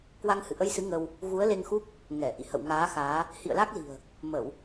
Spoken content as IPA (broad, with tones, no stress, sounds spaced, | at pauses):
k w a˧ ŋ h ɨ̰˧˨ ʔ ə˧ j s ɨ˨˦ ŋ ə˧ w | ɣ u˨˦ ə̯ l e˧ ŋ x u˦˥ k̚ | ŋ ɛ˧˩ ʔ ḭ˧˨ h ə̰˧˨ w ŋ aː˨˦ x aː˨˦ | h ḭ˧˨ ə̯ l a˦˥ k̚ l i̤˨˩ ə̯ | m ə˧˩˨ w